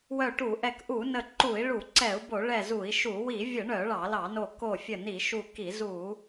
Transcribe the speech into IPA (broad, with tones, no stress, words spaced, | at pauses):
wœ˧˩ʈu˧˩˧ʔɛ˧˩k ʔu˧˩˧nə˧˩ ǃu˧˩˧i̯ɭu˧˩˧ǀɛ˧˩˧u̯ bo˧˩˧ɭɛ˧˩ zu˧˩˧i̯ʃu˧˩˧ wi˧˩˧vʲə˧˩˧ɳœ˧˩˧ ɭɑ˧˩˧lɑ˧˩˧no˧˩ ko˧˩fʲə˧˩ ni˧˩˧ʃu˧˩ki˧˩˧ zu˧˩˧